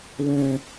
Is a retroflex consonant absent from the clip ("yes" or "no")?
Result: yes